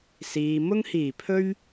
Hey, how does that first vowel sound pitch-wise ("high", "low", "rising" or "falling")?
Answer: low